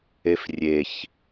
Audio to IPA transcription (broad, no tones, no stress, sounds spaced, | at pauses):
e f rʲ e ç